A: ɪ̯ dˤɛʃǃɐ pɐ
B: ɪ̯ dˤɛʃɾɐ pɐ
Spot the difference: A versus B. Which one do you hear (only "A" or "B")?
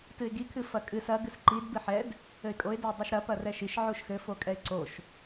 B